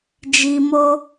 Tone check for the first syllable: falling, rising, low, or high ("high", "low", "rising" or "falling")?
low